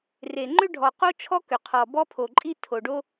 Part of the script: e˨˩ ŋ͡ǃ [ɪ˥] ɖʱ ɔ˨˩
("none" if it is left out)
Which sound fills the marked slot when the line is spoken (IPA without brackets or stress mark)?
ʏ˥